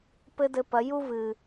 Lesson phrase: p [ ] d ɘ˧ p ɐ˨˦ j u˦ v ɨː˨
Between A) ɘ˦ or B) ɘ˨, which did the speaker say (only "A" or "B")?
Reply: A